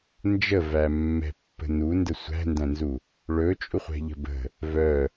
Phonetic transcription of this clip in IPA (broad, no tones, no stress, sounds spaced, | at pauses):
n d͡ʒ ə v æ mː ɛ̤ pː ə̤ n u n d ə sʷ æ̤ n d æ̃ n z u | ɭ ɵ t͡ʃʼ u χʷ ɛ̤ ʎ ə̤ b ə̤ | v œ